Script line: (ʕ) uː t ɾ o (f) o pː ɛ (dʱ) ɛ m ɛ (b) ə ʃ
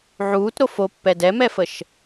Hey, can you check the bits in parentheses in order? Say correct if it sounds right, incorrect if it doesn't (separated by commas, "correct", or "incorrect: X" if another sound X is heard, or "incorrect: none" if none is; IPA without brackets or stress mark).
correct, correct, incorrect: d, incorrect: f